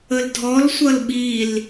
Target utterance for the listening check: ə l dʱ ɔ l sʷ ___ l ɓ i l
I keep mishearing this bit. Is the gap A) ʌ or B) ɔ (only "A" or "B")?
A